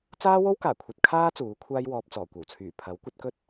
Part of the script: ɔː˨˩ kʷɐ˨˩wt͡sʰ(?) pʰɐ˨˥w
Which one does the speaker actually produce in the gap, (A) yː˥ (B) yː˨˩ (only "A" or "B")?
B